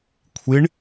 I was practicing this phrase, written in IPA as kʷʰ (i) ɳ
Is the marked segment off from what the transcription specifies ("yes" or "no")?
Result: no